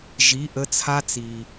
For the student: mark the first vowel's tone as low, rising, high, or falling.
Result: rising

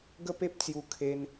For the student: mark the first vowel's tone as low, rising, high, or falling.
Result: high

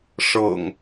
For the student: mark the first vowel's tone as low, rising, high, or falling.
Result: low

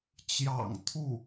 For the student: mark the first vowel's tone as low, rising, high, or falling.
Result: low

